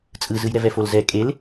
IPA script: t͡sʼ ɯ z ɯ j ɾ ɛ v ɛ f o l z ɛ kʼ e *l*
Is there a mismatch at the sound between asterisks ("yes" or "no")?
no